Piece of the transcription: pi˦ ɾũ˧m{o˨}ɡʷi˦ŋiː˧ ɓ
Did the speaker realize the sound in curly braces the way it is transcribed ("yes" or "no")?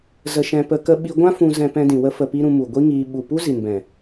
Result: no